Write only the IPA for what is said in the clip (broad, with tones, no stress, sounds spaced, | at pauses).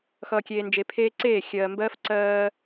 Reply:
x ʌː˨ kʲ eː˨ n d͡ʒ e˨ pʰ eː˦ ǀ eː˦˨ xʲ ɜː˨ m b ɜː˦ f ǀ ɜː˦